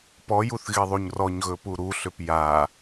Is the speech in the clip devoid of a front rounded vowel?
no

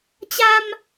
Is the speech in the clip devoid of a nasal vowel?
yes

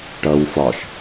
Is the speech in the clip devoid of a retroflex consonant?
no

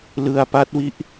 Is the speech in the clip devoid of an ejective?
yes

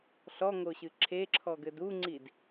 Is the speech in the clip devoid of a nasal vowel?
yes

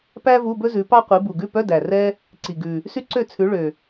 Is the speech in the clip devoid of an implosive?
yes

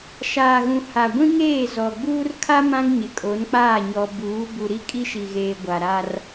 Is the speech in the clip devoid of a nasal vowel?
no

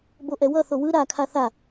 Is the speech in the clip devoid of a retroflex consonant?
yes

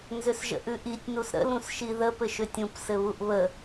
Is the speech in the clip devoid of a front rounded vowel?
no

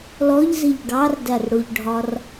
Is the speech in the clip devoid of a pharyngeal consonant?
yes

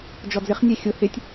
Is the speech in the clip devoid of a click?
yes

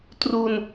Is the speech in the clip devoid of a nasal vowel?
yes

